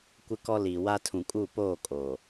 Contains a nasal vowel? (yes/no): yes